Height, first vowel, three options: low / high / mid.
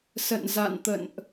mid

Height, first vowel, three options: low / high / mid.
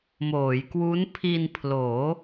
mid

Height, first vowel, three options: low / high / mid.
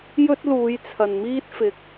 mid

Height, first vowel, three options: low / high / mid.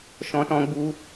mid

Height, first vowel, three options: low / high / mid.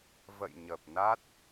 mid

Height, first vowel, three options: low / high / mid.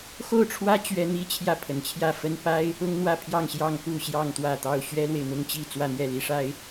mid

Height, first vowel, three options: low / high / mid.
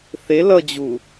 mid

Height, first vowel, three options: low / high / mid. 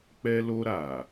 mid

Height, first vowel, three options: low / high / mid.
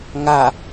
low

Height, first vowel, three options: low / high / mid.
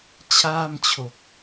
low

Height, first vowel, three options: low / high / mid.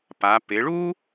low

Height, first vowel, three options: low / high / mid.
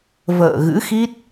mid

